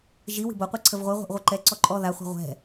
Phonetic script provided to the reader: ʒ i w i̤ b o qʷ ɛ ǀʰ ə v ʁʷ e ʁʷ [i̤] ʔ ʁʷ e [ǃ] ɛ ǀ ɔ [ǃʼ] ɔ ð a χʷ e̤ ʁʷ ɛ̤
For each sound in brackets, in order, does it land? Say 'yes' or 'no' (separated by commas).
no, yes, yes